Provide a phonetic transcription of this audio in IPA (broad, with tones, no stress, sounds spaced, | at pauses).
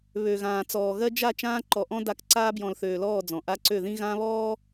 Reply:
β ø˨ ɣ ãː˨ t͡s ɔː˨ ɣ ɜ˦ d͡ʒ a˦˨ t͡ʃ ãː˦ ǃ ɔ˨ ʔ ɔ̃˦ d a˦˨ k ǀ aː˦ b j ɔ̃˨ l θ øː˨ l ɔː˦˨ d͡z ɔ̃˨ ʔ a˦ ǀ ø˦˨ ð ĩ˦ ɣ ã˦ β ɔː˦